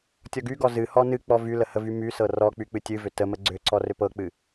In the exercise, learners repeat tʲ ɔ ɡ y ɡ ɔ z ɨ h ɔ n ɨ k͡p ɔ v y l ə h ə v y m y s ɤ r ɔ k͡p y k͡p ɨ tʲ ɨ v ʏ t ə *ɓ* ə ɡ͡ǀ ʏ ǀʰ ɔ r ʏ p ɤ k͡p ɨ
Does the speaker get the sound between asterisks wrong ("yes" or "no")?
yes